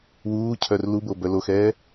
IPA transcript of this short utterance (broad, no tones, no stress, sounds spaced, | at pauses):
w uː cʰ œ r l u b o b œ l o x ɛː